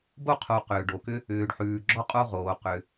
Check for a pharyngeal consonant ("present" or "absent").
present